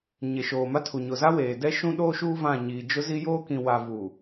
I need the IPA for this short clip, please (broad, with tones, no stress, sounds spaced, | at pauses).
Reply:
ɲ e˨ ʃ oː˨ m a˦ tʰ u˨ ɲ ʊ˨ z a˦ w eː˨ d ɛ˦ ʃ ũ˦ ɗ oː˦ ʃ uː˦ v ã˦˨ ɲ iː˨ d͡ʒ ʊ˦ z i˦ j oː˦ k ĩ˨ w a˨ v u˨